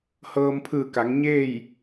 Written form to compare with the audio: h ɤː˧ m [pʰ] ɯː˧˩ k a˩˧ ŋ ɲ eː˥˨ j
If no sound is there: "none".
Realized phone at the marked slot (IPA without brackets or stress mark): pʰ